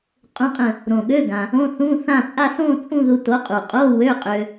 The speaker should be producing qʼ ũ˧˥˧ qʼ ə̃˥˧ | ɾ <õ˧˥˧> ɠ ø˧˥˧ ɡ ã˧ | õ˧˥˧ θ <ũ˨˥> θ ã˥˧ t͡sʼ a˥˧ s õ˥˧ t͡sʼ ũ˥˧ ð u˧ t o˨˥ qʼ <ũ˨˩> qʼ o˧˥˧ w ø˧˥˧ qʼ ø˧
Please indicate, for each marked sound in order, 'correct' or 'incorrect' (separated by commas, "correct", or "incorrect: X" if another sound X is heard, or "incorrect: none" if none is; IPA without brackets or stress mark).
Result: incorrect: õ˨˩, incorrect: ũ˧˥˧, incorrect: u˨˩